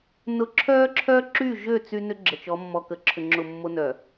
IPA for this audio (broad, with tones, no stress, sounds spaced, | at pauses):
n ʊ˦ ǁʰ œː˦ ǁʰ œ˦ ǁ y˦˨ ʒ ø˦˨ t͡s y˦ n ʏ˦ ɡ͡ǁ ə˨ t͡ʃ ɔ˨˦ mː ɔ˨ k ə˨ ǁʰ ʏ˨ ŋ͡ǁ ʊ˨ mː o˦ n œ˨